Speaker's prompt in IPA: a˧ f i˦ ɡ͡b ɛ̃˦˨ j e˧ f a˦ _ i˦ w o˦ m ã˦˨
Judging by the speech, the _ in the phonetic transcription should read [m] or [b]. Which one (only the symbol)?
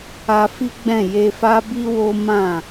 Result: b